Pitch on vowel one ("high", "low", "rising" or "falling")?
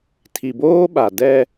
low